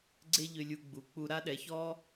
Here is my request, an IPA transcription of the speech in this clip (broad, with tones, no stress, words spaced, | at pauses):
ɡ͡ǀe˥ʎø˧lʲu˧ ɡ͡bu˩˧ k͡pu˧ɾa˥ɗɛ˩˧çɔ˥